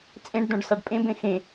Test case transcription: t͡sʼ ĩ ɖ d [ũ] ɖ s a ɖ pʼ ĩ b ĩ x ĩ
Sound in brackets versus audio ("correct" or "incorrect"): correct